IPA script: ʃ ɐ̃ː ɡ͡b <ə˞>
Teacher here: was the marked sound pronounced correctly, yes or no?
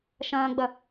no